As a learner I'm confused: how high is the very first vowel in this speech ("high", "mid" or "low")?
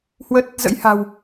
mid